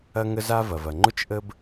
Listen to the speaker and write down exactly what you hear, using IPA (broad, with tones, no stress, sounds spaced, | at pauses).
ɐ˥ ŋ ə˥ z a˥ v ɐ˩ v ɐ˩ ŋ͡ǃ ʊ˥ t͡ʃ ʔ ə˥ b